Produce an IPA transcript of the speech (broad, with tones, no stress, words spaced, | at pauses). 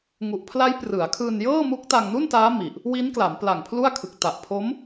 ŋu˨˩ʔpʰla˦˥jprɯ˩˦a̯kʰɯː˧n jɤː˥˩mu˦˥k̚ta˧ŋ nu˥˩ntaː˦˥ mi˨˩ʔ | wi˦˥nkla˩˦mpla˨˩ŋ pʰlu˥˩a̯kʰɯ˨˩k̚ ta˨˩ʔpʰo˦˥m